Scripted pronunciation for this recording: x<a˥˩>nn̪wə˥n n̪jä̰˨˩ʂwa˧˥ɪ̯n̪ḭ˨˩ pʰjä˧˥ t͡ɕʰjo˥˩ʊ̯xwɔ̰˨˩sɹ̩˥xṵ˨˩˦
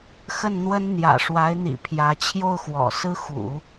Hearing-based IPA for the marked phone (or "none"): ə˥˩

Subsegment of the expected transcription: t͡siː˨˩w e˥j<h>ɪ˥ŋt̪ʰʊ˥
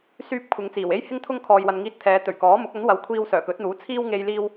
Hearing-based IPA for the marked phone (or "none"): h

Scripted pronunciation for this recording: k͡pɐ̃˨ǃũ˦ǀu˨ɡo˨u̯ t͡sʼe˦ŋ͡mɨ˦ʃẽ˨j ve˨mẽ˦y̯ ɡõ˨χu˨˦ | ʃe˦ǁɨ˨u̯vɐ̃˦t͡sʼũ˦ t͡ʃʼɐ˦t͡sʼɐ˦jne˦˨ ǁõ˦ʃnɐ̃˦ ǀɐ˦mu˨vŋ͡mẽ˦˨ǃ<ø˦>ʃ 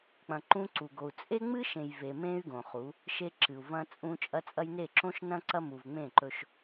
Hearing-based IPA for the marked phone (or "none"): ɵ˦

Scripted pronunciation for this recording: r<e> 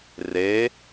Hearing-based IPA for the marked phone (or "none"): e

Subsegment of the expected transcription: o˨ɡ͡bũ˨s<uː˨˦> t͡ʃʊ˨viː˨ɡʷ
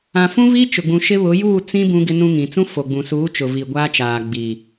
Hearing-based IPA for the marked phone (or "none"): uː˨˦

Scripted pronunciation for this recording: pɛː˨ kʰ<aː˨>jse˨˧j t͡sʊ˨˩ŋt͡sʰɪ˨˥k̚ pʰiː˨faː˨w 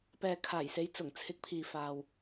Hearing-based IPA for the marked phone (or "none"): aː˨˩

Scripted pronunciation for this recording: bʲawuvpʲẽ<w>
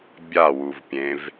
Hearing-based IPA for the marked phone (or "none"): v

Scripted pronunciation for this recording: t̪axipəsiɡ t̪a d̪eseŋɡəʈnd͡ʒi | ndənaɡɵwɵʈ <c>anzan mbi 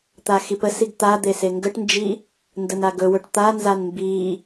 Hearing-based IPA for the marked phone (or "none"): t̪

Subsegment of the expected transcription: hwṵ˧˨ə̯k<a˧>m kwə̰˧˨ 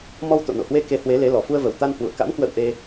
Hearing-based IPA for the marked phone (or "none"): a̰˧˥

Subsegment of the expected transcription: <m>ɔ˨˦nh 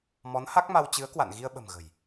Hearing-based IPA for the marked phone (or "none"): m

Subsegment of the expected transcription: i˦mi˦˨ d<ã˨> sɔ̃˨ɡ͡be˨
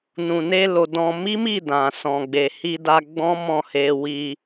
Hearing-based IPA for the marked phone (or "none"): ã˨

